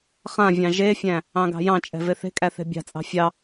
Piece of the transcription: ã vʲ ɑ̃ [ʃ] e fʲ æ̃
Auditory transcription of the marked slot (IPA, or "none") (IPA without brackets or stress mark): ʒ